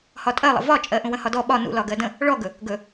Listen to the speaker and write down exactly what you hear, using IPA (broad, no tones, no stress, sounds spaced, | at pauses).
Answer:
h ɒ tʼ ɜ lˠ ə̰ v ɒ t͡ʃʼ ɜ ʔ ũ w ə̃ h ɒ d ɔ ɓ ɒ n ṵ l ɒ ɡ ɜ d ə̃ | ɭ ɔ ɡ ɵ | ɡ ɵ